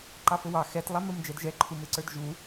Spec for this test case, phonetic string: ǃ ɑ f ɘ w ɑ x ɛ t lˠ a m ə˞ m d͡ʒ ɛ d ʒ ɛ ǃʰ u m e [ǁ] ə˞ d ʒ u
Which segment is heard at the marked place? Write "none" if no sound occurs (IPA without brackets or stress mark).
ǀ